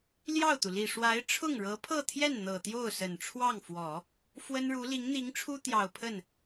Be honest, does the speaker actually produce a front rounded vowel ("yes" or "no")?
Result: no